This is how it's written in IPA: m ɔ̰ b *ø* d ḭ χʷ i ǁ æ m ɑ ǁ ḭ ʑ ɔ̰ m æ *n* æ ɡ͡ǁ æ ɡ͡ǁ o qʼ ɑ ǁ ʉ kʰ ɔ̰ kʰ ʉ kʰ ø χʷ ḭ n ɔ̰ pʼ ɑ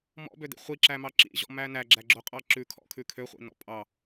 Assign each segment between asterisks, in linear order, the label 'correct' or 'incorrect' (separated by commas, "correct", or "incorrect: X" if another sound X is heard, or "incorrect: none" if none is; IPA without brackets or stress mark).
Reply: correct, correct